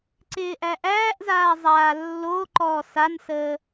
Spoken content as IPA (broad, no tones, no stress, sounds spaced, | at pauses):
ǀ ɪː ʔ æ ʔ æː ʔ z aː zˤ aː lː o ǃ ɔː s a n s əː